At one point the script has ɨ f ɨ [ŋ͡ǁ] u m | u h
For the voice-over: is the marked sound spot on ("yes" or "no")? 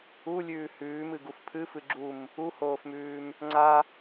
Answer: no